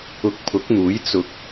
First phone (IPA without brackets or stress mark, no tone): ʊ